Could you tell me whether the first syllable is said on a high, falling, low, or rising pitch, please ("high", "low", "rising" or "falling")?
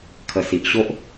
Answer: low